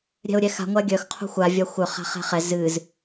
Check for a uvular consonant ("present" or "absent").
present